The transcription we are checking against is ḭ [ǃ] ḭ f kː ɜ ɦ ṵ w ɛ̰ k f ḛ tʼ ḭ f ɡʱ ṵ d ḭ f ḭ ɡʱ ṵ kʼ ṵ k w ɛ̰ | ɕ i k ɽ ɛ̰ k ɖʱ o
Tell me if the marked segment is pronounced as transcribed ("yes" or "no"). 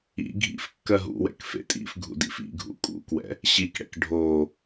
no